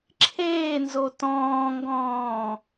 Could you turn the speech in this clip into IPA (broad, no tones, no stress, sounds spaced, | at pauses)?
ǁʰ eː n z o t ɔ̃ː ŋ ɡ ɔ̃ː